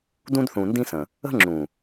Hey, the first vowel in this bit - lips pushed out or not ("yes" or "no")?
yes